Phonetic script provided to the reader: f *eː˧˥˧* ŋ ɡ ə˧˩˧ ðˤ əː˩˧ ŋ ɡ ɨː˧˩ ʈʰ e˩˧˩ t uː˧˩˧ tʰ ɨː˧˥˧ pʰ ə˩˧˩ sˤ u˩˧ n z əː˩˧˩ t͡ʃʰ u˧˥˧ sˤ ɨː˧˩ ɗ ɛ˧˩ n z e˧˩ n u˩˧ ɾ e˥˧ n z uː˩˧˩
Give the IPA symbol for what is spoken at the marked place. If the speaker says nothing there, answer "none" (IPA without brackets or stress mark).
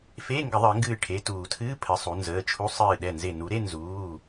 eː˧˥˧